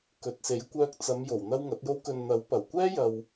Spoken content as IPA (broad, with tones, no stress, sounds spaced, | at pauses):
k ɵ˨˥ t̚ s e˨˥ j kʷ œː˥ k̚ t͡s ɐ˨˧ m j o˨˩ w n̪ ɐ˥ w ŋ ɐ˨˥ t̚ j o˥ w k ɵ˨ n n̪ ɐ˨˥ w p ɐ˨˩ w kʷ ɛː˥ j ɐ˨ w